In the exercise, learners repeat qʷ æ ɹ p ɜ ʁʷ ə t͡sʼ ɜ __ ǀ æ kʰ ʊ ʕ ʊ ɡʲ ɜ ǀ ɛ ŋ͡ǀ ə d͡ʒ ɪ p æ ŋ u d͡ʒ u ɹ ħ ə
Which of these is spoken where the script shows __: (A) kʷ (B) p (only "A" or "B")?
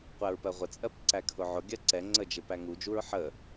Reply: B